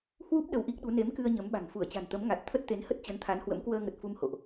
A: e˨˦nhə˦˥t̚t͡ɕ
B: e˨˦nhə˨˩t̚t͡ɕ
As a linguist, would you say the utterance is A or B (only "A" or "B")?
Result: A